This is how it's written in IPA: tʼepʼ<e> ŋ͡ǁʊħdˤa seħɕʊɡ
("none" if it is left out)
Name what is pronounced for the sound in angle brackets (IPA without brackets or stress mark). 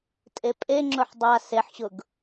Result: e